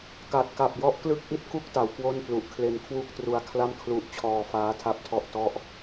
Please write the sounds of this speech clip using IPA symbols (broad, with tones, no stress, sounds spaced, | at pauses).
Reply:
k a˨˩ t̚ k a˨˩ p̚ j ɔ˦˥ ʔ k l ɯ˥˩ k̚ ʔ i˥˩ t̚ k u˥˩ k̚ t a˩˦ w k w o˥˩ n p l u˨˩ ʔ kʰ l e˧ n kʰ w u˥˩ k̚ t r u˧ a̯ kʰ l a˥˩ m kʰ l u˦˥ ʔ t͡ɕʰ ɔː˧ f aː˦˥ tʰ a˦˥ p̚ tʰ ɔ˦˥ ʔ t ɔ˥˩ ʔ